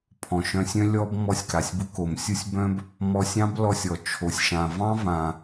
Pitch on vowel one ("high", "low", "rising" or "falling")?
low